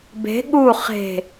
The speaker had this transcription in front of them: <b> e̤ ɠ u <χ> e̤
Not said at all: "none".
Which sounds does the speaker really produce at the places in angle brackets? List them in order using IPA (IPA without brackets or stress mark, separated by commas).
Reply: b, χ